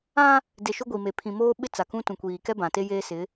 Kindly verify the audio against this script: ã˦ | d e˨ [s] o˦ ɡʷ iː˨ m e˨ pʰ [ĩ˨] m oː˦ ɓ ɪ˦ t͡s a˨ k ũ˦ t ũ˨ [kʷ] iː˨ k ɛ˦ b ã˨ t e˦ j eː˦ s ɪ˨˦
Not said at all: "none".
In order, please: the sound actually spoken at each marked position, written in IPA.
ʃ, ĩ˨, kʷ

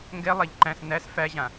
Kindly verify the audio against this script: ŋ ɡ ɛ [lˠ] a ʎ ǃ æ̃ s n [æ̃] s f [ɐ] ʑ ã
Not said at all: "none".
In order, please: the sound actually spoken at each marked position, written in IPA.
lˠ, æ, æ

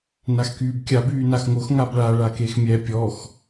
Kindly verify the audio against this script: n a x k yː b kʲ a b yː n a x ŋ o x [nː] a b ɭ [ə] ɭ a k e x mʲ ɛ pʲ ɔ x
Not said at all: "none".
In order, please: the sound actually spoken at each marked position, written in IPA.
ŋ, a

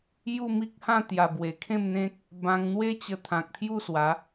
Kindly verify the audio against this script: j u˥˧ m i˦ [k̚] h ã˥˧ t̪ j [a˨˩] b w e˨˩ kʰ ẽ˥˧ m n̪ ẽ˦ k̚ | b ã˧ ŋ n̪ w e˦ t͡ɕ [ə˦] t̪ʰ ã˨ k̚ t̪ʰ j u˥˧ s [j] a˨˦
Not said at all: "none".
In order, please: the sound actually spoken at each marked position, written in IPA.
k̚, a˨˩, ə˧, w

